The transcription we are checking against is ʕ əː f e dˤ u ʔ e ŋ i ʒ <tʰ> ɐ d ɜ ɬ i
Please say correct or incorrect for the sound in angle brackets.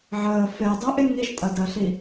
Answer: incorrect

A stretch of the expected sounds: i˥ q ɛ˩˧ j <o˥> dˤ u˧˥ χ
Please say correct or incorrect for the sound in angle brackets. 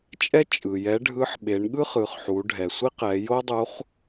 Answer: correct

